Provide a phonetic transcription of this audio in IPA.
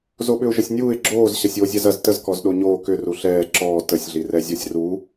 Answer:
z o ɓ ʏ ʊ̯ ʒ ə sʲ nʲ uː ɪ̯ ɡ͡ǁ oː z ɕ ɐ sʲ oː zʲ ɛ z ɐ z t ə z k ɔ z ɗ o ɲ oː k ʏ r u ɬ ɛː ǁ ɔː t ə sʲ ɮ i r ɛ zʲ ɔ sʲ r u

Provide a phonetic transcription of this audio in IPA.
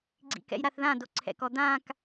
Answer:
ɡ͡ǀ ḭ k ɛ̰ j ɾ a θ ð ã d o ǀʰ ɛ̰ k ɔ d̪ ã k

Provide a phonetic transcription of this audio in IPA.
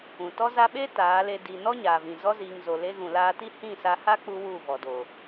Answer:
ũ˨ t ɔ˧ z a˧ ɓ e˦ t aː˨˦ l e˧ d i˨ n ɔ˦ ɲ aː˨ v ĩ˨ z ɔ˧ z iː˨ ŋ z o˨ l e˧ ɣ ũ˨ l aː˧ t i˦ h ĩ˦˨ s a˧ h a˦ k͡p u˧ w u˦˨ v ɔ˨ d o˨

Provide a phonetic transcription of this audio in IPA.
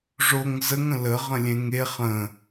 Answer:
ʐ o ŋ z ə ŋ ə̃ l ə ʁ ə̃ lʲ ẽ ŋ e χ ə̃

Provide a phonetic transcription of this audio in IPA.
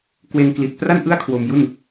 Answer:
k w e˧ n k l i˨˩ t̚ p r a˥˩ n ʔ ɯ˥˩ a̯ kʰ w o˧ m j u˥˩ n

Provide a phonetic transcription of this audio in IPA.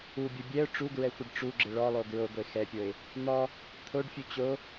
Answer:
u bʲ u bʲ ɛ ʊ̯ ʈ͡ʂ u ɡ ɹ ɛ xʷ ɪ ɖ ʈ͡ʂ u ɡ͡ǁ ɪ ɭ ɔ lˠ o ɡ ɹ o ɡʷ e x ɛ pʲ o ɪ̯ | n̪ ɔ | t̪ʰ o ɖ fʲ u t͡ɕ o

